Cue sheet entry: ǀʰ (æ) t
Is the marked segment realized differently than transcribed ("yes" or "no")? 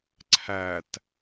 no